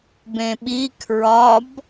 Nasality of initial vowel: nasal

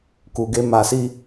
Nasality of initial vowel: oral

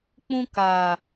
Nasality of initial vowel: nasal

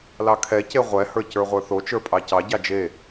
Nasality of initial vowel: oral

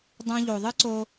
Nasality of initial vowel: nasal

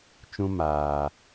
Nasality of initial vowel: nasal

